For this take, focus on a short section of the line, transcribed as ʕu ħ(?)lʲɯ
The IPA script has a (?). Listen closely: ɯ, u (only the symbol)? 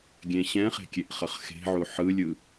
ɯ